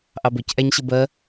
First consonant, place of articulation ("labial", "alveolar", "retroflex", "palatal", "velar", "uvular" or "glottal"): glottal